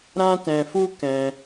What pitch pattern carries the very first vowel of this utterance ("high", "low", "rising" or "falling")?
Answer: high